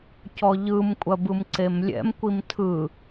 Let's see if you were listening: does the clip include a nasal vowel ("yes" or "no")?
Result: no